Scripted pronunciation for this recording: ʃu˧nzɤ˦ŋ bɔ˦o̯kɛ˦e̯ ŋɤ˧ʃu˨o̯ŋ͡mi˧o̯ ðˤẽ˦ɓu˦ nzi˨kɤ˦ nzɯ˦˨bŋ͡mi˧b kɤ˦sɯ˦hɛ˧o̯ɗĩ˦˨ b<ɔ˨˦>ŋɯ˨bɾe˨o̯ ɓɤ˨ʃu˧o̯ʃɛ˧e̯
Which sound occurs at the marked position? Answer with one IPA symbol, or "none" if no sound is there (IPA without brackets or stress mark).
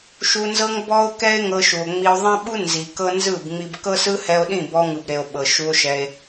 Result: ɔ˧